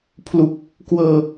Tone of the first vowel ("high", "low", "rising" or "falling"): low